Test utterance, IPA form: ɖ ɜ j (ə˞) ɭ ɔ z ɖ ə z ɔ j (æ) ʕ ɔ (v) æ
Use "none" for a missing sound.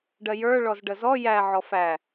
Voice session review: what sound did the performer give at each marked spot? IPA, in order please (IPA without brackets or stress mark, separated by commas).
ə˞, æ, f